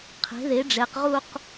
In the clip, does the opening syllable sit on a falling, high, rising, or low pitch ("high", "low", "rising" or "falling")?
rising